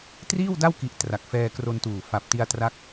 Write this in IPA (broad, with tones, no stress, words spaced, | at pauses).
triː˥˩wda˥˩wki˨˩ʔ tra˨˩k̚fɛː˧kro˧ntuː˨˩ fa˨˩p̚ ti˧a̯tra˦˥k̚